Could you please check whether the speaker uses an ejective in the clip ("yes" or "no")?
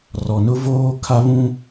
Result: no